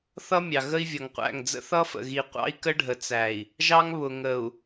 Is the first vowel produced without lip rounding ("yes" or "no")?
yes